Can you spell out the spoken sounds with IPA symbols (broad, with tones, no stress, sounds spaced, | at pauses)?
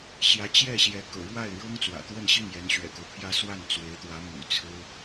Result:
ɕ j ä˧˥ t͡ɕ j ɛ˥˩ ɕ j ɛ˧˥ k ɤ̰˨˩ ɻ w a˥˩ ɪ̯ ɻ ɤ˥ ŋ t͡s w ä̰˨˩ t̪ w ə˥˧ n ɕ i˥˩ ŋ j ɛ˧˥ n ɕ ɥ ɛ̰˨˩ k o˦ ʊ̯ pʰ j ä˥ s w a˥˩ n t͡s w e˧˥ ɪ̯ t̪ w ä˧˥ m y̰˨˩ t͡sʰ ɹ̩˥